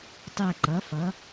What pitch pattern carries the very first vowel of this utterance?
falling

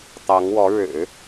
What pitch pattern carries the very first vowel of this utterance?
rising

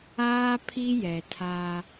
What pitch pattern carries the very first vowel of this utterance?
high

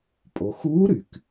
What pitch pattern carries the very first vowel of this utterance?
low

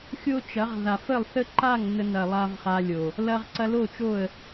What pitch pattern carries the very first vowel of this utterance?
high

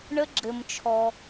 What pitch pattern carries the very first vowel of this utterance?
high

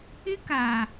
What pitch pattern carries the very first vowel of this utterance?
high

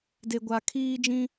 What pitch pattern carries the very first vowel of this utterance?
low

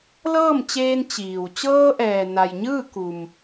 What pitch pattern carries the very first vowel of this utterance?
falling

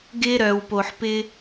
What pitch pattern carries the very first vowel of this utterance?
high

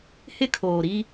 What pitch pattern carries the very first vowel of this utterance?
high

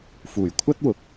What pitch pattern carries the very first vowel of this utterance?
low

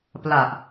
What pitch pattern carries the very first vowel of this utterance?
low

